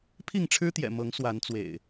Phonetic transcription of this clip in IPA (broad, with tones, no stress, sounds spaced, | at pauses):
pʰ i˥˨ ŋ ʈ͡ʂʰ ɻ̩˦ t̪ j ɛ̰˨˩ m ɤ˨˦ ŋ s w a˨˦ n t͡s w ḛ˨˩ ɪ̯